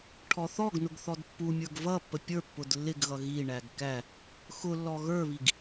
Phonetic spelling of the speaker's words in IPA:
ʈʰ ɔ θ ɔ ɡ n ʊ ɡ θ ɔ d pː u mʲ ə˞ ɡ v ʌ pː ə pʲ ə˞ pː ʊ d lː ɪ ɡ ɣ ʌ ɣ i ɳ æ ɡ k æ | x ʊ lː ɔ ɣ ə˞ β i ɡ

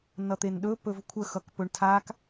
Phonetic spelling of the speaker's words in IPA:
n ʌ t̪ e n ɗ ɵ p ɵ v kʷʰ ə x ʌ k p ɵ ɳ tʰ a k

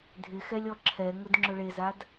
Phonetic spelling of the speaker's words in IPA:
dʱ ɪ x ɛ lʲ ɔ ǁʰ ɛ ŋ ʊ d ŋ͡ǁ ʊ ɭ e z a d

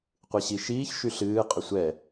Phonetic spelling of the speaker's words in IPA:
qʷ ɨ ɕ i ʃ iː ç ʃ y ɬ ɨː qʼ ʏ sʷ ɛ

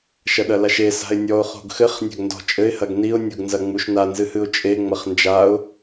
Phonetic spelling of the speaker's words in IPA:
ʃ ɐ ɗ ɐ l a ʃ e s a̤ ɪ̯ nʲ ɔ ʊ̯ χ o̤ ɡ x ɘ χ nʲ a̤ ɡ n d ɔ̤ t͡ʃʼ ɘ ɪ̯ h ɐ ɡ n i ʊ̯ nʲ o ɡ n z ɐ ŋ͡m u ʃ n a n z ɨ h ɨ ʊ̯ t͡ʃʼ e ŋ͡m ɐ χ n d͡ʒ a ʊ̯

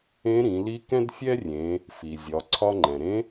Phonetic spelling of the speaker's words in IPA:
ẽ˧˥ ɾ ĩ˩˧ l i˧˥ k ɛ̃˥ d fʲ ɛ˥ rʲ ẽ˩˧ | f i˩ zʲ ɒ˩˧ ǀʰ ɒ˧ ŋ͡ǃ ɛ̃˩ ɾ ẽ˧˥

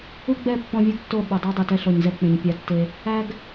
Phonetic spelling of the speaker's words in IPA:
u˦ ɡ͡b ɛ˦˨ pː ɔ̃˦ vʲ u˦ ɡ tː o˦˨ ɓ o˨ dˤ u˦ dˤ u˨ t ɛ˦ ɬ ɔ˨ ɲ z ɛ˦ k͡p ẽ˨ ɲ pʲ a˦ tː e˦ | æ˦ ɡ

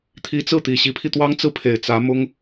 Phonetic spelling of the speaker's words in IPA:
t̪ʰ i˧˥ t͡s ɹ̩˥˩ t̪ i˨˩ ɕ i˧˥ pʰ i˧ t̪ w ɑ˥ ŋ t͡s ɹ̩˥ pʰ e˨˩ ɪ̯ t͡s ä˧˥ m ʊ˥ ŋ

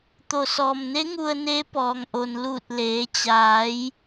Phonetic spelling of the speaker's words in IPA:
t̪ o˩ s ɔː˩ m n e˧˥ ŋ u˧ ə̯ n e˧˥ p ɔː˩ ŋ ʔ o˩ n l uː˧˩ t̚ l eː˩˧ t͡ɕ aː˩˧ j

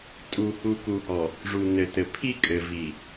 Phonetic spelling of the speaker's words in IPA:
tʼ u˨ h u˨ k u˨ h ɔ˨ | ʐ u˨ n ɘ˨ t ɘ˨ pʰ i˦ kʼ ɘ˨ v i˨

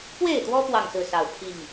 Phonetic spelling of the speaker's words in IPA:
p w e˥˨ ɪ̯ t̪ w ɔ˦ p w ɑ˥˨ ŋ s ɹ̩˥˨ s ɑ˨˩ ʊ̯ pʰ i˥˨ ŋ

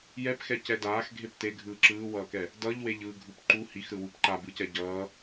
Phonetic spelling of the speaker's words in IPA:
j ɛ p x ɛ c ɛ d aː x ɡʱ e p t e ɡʱ ɯː ǁ ɯː w ʌː k ɛ | d ʌ ʎ w e ʎ ɯː ɡʱ u p ǃ u h i x ɾ ɯ w u p ǃ a b ɯ c ɛ ɟ ʌː

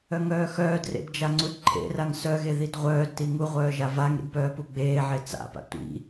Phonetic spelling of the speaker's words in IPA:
œ ŋ œː x œː d r ḛ d d͡ʒ a ŋ͡ǀ u d ǃʰ ḛ r a ŋ s œ ɣ e ð i d ʁʷ œː d t i ŋ u ʁʷ œː ʒ a v a ŋ ɾ ḭ d p œː p u ɡ͡b eː ʕ e t͡s a̰ p a̰ tʷ ḭ

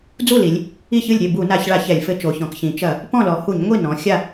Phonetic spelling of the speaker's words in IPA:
d͡z u˥˩ l i˩˧ lʲ | i˥˩ ç ɨ˥˩ lʲ ɾʲ e˥˩ b u˧˩˧ n a˧˩˧ ç ɭ a˧˩˧ ç ɛ˧˩˧ lʲ f ɘ˧˥ t͡ʃ o˩˧ ç ɔ̃˩˧ k ç ĩ˩˧ t͡ʃ ɐ˧˩˧ | p ɔ̃˥˩ l ɔ˩˧ h u˧˩˧ ɲ ŋʷ i˥˩ n ɔ̃˩˧ xʲ a˥˩

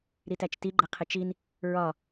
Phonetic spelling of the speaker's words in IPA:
ɾ i t æ t͡ʃ t i ɡ͡ǃ ɛ qʰ ɪ t͡ʃ i n | ɹ ɒ

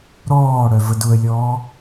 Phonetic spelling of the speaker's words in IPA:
ɾ ɔː ɽ œ v ə d ʊ ə̯ lʲ ɔː

